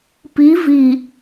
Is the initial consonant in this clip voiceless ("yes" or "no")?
yes